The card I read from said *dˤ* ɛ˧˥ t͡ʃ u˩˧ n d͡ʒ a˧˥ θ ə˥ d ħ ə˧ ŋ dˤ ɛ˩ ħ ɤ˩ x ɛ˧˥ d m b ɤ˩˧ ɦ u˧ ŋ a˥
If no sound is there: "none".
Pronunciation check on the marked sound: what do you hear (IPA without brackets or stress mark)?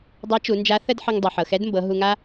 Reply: dˤ